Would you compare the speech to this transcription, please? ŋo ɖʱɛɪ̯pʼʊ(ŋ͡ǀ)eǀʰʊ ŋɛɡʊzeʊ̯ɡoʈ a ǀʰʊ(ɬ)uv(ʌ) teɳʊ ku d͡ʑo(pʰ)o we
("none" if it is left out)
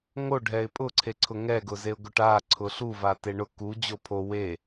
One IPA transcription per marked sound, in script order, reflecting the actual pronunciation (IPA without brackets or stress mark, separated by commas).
ǀʰ, ɬ, a, pʰ